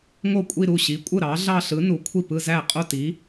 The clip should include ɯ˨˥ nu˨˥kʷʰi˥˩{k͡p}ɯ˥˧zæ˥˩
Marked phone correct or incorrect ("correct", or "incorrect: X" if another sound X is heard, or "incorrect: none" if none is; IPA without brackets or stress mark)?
incorrect: p